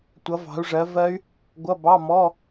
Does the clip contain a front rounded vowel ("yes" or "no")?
yes